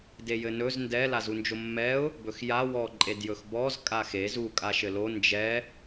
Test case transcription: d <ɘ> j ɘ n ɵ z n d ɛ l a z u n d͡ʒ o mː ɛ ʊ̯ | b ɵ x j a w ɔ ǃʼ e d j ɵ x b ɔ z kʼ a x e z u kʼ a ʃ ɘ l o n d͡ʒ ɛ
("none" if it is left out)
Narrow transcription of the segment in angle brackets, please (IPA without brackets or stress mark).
e